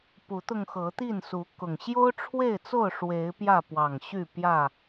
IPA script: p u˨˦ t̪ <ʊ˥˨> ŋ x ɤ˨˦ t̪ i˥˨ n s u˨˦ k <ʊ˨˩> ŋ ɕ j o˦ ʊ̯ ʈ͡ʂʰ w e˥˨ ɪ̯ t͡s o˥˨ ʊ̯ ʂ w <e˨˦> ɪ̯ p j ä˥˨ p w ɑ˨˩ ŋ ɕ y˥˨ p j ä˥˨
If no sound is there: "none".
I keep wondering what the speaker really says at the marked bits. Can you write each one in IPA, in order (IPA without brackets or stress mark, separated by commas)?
ʊ˧, ʊ˨˩, e˨˦